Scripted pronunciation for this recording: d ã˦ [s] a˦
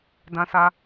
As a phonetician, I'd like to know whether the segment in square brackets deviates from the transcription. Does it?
no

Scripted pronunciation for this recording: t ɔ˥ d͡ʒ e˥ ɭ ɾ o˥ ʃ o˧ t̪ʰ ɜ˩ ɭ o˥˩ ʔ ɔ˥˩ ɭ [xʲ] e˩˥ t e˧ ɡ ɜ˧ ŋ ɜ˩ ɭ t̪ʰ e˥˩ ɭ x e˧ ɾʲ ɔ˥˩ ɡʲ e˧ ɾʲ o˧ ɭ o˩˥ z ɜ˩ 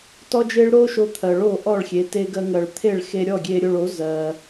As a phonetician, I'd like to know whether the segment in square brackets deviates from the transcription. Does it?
no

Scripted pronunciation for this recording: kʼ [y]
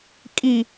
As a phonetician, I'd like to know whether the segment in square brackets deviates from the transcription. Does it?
yes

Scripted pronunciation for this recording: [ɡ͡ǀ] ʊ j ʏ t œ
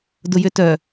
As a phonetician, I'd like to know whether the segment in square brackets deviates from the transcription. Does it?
yes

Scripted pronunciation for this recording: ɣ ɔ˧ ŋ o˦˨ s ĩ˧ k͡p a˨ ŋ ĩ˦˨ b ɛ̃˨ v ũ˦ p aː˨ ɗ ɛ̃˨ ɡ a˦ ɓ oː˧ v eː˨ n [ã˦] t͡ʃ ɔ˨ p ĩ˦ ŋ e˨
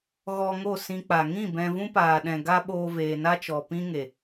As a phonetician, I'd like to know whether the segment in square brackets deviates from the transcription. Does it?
yes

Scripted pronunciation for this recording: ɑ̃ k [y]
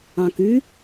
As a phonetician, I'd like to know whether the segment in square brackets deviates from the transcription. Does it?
no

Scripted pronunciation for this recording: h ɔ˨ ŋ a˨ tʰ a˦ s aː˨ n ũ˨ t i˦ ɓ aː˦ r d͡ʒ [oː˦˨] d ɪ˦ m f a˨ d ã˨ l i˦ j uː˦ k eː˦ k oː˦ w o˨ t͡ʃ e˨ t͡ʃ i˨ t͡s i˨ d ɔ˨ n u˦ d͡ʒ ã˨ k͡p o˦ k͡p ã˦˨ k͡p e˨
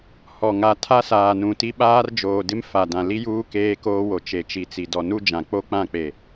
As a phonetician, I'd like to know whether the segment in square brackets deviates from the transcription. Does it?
yes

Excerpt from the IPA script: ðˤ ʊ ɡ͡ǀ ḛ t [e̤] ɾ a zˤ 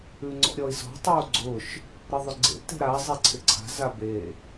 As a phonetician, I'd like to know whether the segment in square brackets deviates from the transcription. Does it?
no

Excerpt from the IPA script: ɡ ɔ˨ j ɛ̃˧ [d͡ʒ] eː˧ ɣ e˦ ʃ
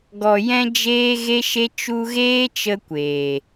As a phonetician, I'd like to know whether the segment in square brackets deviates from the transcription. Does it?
no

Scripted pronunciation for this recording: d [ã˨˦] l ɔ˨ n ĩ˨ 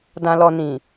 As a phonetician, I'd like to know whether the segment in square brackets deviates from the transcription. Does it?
yes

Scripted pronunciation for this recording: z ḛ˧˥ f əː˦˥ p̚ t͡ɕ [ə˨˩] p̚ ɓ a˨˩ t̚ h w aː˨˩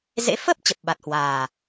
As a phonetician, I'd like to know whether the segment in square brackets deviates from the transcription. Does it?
no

